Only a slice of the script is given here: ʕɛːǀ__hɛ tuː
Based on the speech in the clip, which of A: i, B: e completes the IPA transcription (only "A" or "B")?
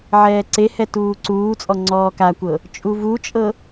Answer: B